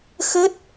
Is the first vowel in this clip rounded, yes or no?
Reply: no